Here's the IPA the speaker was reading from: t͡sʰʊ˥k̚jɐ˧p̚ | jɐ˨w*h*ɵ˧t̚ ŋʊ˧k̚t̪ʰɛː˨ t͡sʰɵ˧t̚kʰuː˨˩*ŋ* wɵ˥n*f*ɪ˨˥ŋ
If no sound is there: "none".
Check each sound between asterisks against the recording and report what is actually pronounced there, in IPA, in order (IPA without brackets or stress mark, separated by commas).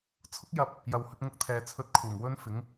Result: h, ŋ, f